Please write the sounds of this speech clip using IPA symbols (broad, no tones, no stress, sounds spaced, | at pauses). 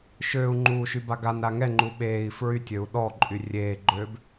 ʃ øː u̯ ŋ͡ǃ uː ʃ y b a ɡ a n ɾ a ŋ ɛ ŋ͡ǃ u ɓ eː i̯ f ɹ y tʲ ø u̯ ɗ ɔ ǃʼ y rʲ eː ɡ͡ǃ øː b